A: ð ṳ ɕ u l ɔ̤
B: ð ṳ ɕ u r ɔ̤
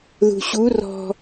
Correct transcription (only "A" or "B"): B